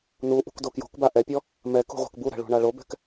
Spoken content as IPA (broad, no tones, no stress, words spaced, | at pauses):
nu ʔṳkdokjo̤kba ʔɛpʲɔ | mɛk ṳʁʷɛ̤kbuɾɛ̤ ɭṳɳaɭobɛ̤k